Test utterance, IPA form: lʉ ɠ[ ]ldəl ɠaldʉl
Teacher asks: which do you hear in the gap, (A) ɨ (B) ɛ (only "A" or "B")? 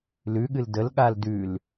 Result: A